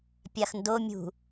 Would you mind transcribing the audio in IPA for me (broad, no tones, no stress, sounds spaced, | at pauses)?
pʲ a x n d o mʲ ṳ